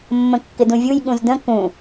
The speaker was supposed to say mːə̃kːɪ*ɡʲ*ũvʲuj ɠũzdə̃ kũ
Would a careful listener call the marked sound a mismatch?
yes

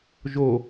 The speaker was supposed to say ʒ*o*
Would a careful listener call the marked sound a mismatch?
no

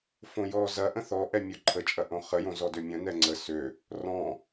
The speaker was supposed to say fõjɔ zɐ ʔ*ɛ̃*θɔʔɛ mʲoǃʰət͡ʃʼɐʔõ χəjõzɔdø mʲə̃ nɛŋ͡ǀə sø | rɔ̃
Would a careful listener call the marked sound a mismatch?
yes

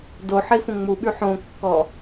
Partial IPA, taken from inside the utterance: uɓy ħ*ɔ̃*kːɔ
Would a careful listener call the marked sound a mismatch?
yes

